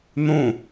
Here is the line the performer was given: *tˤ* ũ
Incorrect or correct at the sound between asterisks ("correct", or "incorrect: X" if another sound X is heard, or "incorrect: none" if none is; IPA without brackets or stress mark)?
incorrect: n̪